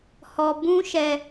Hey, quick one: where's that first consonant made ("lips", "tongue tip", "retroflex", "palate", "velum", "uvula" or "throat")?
throat